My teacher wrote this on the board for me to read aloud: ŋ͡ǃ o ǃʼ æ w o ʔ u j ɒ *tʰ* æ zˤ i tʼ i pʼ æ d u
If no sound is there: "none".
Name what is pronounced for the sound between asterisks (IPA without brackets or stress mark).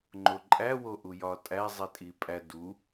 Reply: tʼ